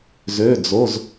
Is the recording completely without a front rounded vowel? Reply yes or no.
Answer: no